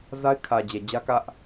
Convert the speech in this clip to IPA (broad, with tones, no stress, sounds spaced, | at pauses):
z a˦ ɪ̯ kʰ ä˨ d͡ʑ ɛ˨ d͡ʑ ä˦ k ä˦ ʔ